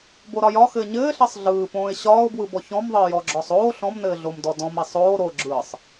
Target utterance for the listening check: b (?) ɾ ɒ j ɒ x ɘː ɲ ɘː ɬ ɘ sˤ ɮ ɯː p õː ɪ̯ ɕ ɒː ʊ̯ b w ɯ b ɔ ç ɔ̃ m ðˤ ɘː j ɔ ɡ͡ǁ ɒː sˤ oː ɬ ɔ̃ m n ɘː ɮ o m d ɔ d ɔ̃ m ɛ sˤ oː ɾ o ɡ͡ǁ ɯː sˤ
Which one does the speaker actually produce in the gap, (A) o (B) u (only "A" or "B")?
A